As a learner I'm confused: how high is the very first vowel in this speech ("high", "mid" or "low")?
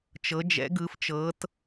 mid